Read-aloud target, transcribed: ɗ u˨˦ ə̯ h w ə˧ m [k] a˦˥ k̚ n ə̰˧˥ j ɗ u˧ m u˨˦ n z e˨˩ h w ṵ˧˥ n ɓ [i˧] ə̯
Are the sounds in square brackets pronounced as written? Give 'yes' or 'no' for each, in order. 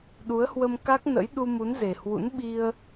yes, yes

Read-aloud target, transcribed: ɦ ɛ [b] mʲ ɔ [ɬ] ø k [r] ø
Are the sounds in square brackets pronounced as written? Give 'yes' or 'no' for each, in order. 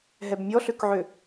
yes, yes, no

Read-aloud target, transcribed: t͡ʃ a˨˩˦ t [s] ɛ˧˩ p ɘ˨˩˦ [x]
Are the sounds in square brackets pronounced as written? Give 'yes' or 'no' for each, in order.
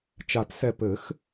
yes, yes

